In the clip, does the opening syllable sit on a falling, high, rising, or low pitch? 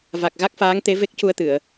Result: low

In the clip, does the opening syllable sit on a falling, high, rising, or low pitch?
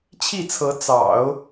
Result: falling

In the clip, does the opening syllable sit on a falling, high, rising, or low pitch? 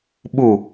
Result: falling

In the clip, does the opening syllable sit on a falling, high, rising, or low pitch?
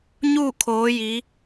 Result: falling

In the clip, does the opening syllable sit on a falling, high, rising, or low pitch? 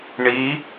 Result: rising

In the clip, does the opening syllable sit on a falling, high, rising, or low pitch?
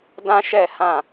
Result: high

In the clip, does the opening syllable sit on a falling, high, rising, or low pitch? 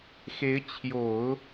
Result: rising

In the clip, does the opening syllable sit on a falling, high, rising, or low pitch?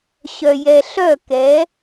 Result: low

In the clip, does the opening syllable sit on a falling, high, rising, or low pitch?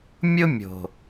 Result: high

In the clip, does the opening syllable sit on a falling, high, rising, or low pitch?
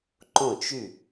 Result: falling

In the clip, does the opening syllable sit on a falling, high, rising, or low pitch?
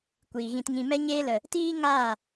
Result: low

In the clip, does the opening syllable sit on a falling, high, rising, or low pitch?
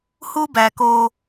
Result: high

